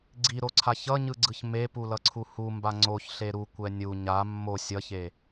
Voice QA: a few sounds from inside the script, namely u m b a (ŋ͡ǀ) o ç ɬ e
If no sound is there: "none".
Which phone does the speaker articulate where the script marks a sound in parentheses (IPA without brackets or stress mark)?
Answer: ŋ͡ǀ